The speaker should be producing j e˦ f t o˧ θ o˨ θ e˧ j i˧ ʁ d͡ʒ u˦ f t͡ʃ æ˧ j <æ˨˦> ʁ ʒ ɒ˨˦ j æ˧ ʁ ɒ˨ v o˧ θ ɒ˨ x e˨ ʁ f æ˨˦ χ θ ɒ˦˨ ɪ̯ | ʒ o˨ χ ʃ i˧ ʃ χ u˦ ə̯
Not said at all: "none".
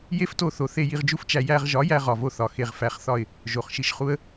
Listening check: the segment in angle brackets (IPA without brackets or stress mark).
æ˧